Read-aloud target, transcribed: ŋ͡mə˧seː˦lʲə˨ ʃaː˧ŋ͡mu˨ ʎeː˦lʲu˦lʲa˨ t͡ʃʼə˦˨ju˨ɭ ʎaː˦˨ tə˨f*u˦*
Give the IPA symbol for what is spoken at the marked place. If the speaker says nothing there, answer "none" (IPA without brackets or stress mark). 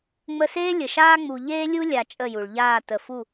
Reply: u˦˨